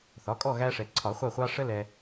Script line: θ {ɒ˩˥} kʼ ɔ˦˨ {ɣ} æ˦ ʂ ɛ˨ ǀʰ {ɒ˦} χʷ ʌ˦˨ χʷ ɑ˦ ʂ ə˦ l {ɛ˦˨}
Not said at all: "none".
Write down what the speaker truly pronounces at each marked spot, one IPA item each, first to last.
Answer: ɒ˩˥, ɣ, ɒ˨˩˦, ɛ˨

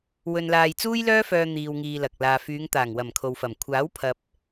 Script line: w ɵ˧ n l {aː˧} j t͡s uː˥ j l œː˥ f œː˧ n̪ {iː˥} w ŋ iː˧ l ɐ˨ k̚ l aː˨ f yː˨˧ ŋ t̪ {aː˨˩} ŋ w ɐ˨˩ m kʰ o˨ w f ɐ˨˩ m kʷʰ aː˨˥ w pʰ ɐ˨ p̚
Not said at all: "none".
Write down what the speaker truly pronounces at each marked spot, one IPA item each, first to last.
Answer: aː˧, iː˧, aː˨˩

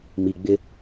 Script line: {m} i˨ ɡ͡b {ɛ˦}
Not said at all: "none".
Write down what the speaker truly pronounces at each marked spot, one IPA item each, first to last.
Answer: m, ɪ˦

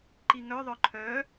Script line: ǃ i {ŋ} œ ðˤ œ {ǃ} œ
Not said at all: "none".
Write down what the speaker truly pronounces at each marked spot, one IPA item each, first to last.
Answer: ŋ, ǃʰ

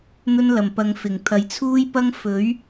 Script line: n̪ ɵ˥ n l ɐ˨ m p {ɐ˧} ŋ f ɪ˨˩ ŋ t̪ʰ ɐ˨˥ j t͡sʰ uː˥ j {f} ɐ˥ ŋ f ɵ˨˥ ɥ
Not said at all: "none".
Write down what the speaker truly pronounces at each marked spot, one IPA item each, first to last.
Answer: ɐ˧, p

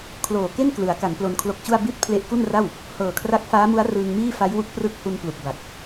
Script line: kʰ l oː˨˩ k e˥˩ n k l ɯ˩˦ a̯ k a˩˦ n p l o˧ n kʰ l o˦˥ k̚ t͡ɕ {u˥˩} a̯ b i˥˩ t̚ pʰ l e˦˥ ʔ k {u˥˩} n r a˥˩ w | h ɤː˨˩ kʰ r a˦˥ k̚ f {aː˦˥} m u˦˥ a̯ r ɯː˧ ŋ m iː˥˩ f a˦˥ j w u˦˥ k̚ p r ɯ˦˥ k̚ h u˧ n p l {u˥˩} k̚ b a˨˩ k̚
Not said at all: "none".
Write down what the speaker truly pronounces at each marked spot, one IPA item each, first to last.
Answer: u˥˩, u˥˩, aː˦˥, u˨˩

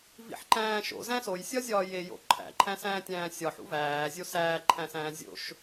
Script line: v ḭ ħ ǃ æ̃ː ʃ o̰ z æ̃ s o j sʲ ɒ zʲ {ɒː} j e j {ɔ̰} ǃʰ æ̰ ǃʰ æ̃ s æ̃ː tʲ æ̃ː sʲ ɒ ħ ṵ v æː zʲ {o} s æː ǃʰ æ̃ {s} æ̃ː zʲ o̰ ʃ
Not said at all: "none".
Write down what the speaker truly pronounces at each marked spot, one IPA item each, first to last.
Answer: ɒː, o̰, o, s

